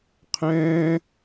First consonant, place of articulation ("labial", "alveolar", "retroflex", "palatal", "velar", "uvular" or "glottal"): uvular